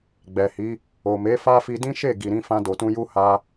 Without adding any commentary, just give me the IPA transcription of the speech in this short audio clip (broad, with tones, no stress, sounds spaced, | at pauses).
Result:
ɡ͡b ɛ˨ h i˨˦ | o˨ m e˨˦ f a˦ f i˧ d ĩ˦ ʃ e˦˨ ɡ i˨ ɾ ĩ˧ f ã˧ d o˨ t ũ˧ j u˦ h a˧